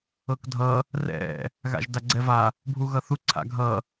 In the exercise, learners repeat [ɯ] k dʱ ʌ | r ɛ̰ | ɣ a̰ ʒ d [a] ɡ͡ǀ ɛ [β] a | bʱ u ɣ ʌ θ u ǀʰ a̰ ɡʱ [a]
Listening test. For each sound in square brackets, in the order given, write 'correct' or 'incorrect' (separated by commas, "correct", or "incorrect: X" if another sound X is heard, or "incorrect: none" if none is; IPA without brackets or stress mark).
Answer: incorrect: ɤ, correct, incorrect: v, incorrect: ʌ